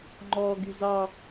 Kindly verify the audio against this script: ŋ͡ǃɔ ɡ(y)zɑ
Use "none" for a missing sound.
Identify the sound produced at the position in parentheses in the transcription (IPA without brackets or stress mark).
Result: y